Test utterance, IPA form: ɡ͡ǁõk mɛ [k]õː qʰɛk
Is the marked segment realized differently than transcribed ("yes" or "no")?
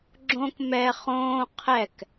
yes